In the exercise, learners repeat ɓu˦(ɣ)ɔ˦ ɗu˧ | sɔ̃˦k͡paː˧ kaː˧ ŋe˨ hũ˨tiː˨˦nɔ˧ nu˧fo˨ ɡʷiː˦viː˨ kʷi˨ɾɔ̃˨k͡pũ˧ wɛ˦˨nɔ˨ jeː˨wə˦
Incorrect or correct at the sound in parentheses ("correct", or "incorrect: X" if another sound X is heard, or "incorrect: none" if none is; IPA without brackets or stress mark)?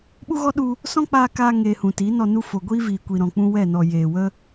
correct